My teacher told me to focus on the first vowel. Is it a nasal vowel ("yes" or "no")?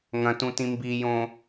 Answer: yes